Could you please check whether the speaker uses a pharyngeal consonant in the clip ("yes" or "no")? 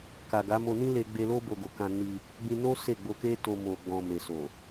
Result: no